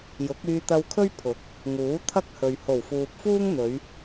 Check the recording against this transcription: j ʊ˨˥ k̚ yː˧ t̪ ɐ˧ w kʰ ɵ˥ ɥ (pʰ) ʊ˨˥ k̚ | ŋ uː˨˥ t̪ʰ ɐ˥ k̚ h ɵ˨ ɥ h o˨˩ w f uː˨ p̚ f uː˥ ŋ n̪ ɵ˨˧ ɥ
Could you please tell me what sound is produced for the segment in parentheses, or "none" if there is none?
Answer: pʰ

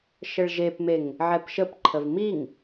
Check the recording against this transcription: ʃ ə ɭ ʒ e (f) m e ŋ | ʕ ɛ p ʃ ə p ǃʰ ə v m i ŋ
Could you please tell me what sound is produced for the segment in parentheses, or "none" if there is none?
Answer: p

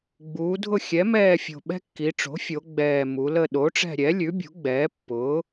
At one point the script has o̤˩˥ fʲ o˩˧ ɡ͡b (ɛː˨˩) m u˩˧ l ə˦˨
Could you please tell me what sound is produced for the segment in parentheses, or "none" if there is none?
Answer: ɛː˨˩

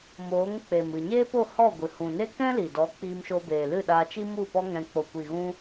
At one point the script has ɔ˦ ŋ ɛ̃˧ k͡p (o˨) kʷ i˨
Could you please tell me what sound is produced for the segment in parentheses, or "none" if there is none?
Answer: o˨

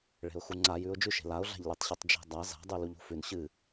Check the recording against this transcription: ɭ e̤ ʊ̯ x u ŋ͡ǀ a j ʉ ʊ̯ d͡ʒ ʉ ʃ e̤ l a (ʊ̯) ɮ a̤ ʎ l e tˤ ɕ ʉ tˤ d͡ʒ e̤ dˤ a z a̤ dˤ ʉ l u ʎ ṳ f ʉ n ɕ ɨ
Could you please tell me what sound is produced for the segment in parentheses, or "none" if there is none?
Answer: ʊ̯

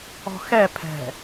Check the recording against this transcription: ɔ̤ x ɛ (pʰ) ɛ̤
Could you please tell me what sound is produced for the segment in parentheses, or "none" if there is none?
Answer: pʰ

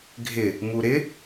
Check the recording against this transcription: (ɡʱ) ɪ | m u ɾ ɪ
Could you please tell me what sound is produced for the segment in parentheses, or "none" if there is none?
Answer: ɡʱ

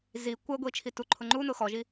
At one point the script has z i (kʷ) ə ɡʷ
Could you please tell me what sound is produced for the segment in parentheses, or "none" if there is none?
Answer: kʷ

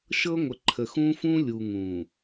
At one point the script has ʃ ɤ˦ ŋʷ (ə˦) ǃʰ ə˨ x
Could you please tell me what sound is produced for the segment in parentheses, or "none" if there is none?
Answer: ə˨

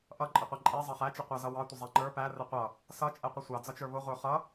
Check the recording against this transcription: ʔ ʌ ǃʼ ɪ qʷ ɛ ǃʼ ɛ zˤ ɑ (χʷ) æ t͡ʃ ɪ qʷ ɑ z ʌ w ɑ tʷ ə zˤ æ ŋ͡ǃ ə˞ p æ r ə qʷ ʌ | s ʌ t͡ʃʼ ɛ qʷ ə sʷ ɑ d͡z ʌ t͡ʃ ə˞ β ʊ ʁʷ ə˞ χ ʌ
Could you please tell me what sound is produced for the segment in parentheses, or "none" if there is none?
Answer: χ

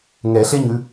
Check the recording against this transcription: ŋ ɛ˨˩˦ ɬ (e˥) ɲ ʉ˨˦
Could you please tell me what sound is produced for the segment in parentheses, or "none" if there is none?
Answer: e˥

